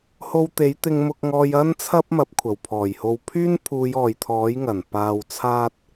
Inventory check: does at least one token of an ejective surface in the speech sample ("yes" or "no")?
no